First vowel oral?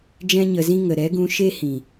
no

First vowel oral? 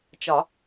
yes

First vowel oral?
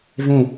no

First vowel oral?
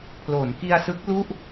yes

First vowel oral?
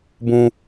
no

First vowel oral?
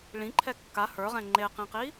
no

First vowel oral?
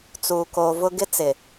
yes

